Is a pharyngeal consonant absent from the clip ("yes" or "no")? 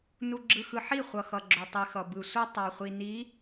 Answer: no